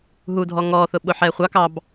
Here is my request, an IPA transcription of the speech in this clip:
ɦ u dʱ ɔ ŋ ɔ θ ʊ ɓ ʊ ħ ɛ χʷ ɑ k ɑ b

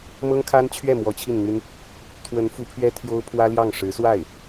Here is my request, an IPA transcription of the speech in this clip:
m ɤ˥ ŋ kʰ a˥ n t͡ɕʰ ɥ ɛ˥˩ m w ɔ˧˥ t͡ɕʰ i˥˩ n n̪ y˥ n | t̪ʰ w ə˧˥ n f u˧˥ pʰ ɥ ɛ˥ t̪ʰ j o˥ ʊ̯ pʰ w ä˥ l j ɑ˥˩ ŋ ʂ ɻ̩˧˥ s w a˥˩ ɪ̯

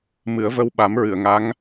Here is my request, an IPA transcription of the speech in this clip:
m ɨ˨˩˦ ə̯ v ə˧ w ɓ a˨˩˦ m ɹ ɨ˨˩˨ ə̯ ŋ a˧˥ ŋ

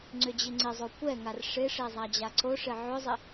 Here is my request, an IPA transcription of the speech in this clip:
ŋ͡ǀ ʏ d͡ʑ i ŋ͡ǀ ɪ zˤ o kʷ ɛ ŋ a r ʂ ɪ ʂ e zˤ a d͡ʑ a ǀ o ʂ ɪ ʕ ʏ zˤ ɪ

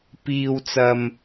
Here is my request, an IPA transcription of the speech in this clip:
p iː˨ w t͡s ɐ˨ m

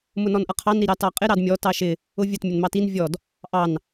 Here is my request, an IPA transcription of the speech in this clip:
m ʊ n ɔ n ʔ ʌ qʰ ɑ n ɾ i ɾ ɑ t ɑ qʼ ɪ ɾ ɑ d mʲ ɔ t ɑ ʃ ɪ | ʊ vʲ ʊ t mʲ ʊ n m ɑ t i n vʲ ɔ d | ʔ ɑ n

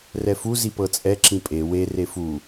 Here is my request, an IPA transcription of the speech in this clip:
r ɛ f u z i p ɤ t͡sʼ ɛ ǁ ĩ pʼ e w e r e f u

